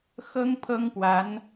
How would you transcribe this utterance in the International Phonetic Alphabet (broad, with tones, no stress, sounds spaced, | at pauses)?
x ɤ˥ ŋ pʰ ɤ˥ ŋ p w a˧˥ n